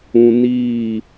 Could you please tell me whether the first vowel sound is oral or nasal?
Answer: nasal